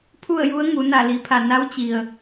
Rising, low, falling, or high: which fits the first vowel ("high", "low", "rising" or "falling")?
falling